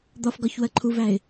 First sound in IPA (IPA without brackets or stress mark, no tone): d̪